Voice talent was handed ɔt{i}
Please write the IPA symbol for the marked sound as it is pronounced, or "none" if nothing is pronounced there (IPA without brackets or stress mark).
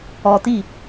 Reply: i